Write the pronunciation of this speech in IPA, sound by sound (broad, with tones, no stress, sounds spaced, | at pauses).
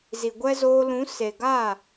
z i˨ ɡʷ ɛ˦ z oː˧ l ũ˨˦ s e˨ ɡ aː˦˨